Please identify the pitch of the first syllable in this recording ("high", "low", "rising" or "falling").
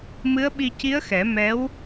rising